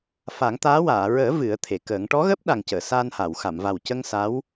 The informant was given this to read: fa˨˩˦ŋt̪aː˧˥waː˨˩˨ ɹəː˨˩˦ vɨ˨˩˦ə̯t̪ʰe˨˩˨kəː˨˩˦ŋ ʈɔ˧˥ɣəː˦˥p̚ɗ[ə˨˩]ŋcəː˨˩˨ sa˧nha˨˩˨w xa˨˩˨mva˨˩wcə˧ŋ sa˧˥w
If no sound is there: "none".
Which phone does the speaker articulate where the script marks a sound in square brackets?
a˨˩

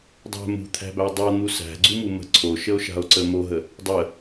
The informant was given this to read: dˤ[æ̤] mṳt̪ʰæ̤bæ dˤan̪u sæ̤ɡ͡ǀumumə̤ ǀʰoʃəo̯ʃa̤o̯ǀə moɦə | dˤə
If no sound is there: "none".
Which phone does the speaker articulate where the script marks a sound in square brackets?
æ̤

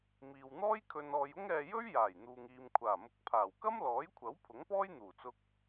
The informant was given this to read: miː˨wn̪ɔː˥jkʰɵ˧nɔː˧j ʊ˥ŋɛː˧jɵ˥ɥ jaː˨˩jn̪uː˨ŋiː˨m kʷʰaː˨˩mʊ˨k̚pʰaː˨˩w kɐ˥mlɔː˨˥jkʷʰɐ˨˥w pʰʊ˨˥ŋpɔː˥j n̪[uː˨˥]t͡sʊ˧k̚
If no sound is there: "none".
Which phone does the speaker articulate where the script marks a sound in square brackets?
uː˨˩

